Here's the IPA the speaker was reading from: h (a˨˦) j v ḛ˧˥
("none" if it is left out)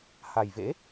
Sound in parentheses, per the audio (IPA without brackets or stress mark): a˨˩